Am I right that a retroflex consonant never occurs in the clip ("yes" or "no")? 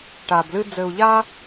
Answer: no